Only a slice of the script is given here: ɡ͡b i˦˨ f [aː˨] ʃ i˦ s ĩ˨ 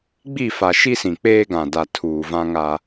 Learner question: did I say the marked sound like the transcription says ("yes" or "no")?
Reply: no